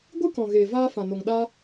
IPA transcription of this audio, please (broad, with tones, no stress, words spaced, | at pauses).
ɡʷɨ˦kɔ̃˨ɣeː˨ vaː˧ fã˨no˨ŋɗaː˧